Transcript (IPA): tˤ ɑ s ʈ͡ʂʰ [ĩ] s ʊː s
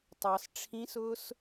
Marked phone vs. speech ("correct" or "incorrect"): correct